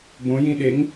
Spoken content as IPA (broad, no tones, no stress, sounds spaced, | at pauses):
b õ j ĩ ɗ e ŋ